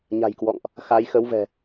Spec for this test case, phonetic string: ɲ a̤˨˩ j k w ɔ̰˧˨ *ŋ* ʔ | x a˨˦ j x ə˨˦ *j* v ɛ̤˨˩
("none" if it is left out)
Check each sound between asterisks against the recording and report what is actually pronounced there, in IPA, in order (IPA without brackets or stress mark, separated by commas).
ŋ, w